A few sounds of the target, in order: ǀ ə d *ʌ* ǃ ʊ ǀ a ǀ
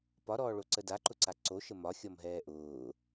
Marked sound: incorrect: a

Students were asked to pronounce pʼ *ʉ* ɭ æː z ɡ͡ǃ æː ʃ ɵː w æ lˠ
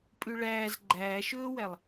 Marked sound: correct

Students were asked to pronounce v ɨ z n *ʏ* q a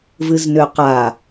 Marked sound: correct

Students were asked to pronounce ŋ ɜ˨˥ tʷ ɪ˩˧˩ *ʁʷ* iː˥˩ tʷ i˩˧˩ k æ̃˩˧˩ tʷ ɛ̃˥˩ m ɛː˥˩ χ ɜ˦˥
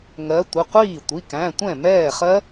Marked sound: incorrect: qʷ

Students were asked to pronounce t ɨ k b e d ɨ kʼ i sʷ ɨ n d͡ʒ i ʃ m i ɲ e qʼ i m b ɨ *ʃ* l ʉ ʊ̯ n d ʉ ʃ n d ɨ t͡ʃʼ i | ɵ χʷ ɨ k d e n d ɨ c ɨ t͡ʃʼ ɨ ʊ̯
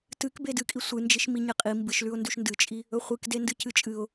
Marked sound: correct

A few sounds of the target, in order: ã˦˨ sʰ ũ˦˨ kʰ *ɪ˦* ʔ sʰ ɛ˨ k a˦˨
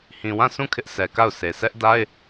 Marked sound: correct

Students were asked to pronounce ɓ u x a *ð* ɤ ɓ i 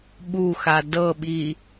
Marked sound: incorrect: d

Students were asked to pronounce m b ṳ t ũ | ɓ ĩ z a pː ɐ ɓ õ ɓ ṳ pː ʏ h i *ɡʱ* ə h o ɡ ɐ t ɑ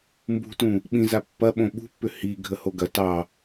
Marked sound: correct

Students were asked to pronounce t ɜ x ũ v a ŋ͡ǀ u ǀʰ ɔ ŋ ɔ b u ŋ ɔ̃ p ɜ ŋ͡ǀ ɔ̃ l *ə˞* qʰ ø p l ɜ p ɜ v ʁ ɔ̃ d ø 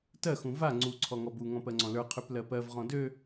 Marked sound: correct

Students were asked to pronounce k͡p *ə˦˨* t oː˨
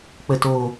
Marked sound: incorrect: ə˨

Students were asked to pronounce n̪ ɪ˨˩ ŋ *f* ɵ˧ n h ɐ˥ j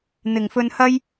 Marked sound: correct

